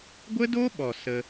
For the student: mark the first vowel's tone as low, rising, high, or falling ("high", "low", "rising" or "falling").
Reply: high